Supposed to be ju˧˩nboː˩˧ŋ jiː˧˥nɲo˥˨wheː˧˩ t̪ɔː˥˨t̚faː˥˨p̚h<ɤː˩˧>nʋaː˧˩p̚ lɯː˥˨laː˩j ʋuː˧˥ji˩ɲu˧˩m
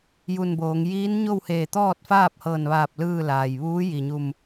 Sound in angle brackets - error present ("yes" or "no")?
yes